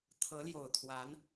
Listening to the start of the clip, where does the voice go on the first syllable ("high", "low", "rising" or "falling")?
rising